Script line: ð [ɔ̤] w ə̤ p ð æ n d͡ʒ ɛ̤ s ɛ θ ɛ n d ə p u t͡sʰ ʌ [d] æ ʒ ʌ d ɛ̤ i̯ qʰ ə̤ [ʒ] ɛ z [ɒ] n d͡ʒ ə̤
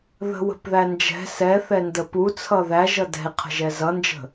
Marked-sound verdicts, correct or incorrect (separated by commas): incorrect, incorrect, correct, incorrect